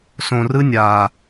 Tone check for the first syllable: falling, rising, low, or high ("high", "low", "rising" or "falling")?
low